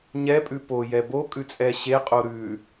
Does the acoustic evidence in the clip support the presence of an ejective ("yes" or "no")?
yes